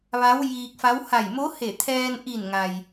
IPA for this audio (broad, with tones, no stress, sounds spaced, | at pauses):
ʋ a˧˥ w j iː˧ k̚ f a˧˥ w h a˧˩ j m o˧˥ h e˧˩ t̪ʰ ɛː˧ n ʔ i˧˩ n ŋ a˩ j